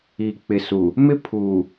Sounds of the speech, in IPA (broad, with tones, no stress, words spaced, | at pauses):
iː˨k͡pɪ˨su˨ | mɪ˦pʰuː˨